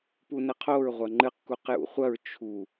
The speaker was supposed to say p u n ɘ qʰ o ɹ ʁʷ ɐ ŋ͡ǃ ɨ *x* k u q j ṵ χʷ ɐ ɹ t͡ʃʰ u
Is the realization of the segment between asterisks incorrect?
yes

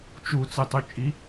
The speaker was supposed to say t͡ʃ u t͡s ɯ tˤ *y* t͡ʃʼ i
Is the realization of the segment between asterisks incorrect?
no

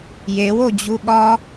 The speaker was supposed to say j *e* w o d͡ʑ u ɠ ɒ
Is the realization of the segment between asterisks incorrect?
no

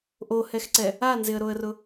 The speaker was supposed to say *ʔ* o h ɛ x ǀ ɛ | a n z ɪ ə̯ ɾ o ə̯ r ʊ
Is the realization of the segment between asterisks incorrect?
no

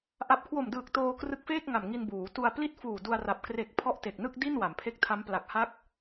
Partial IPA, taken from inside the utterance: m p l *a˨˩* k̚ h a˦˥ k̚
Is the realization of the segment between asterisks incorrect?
no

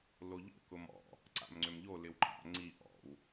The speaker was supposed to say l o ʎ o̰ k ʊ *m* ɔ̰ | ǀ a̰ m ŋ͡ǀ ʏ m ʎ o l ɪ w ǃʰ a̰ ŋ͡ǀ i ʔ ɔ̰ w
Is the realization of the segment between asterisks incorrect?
no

